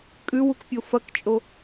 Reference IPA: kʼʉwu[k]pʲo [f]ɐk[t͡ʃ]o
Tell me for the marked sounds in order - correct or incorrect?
correct, correct, incorrect

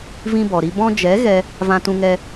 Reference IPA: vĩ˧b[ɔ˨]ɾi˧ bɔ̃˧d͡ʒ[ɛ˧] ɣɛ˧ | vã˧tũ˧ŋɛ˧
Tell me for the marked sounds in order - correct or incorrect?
correct, incorrect

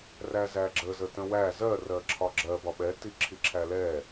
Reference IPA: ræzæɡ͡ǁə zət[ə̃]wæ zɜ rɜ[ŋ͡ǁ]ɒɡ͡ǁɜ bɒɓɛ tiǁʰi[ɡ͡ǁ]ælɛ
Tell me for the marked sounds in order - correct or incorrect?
correct, incorrect, incorrect

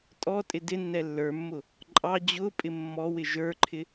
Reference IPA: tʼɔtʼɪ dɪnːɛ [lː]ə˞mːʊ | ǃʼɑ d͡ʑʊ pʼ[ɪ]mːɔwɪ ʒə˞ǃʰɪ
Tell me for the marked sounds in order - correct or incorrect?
correct, correct

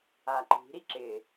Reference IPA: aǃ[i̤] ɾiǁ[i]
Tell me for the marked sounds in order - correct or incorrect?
correct, incorrect

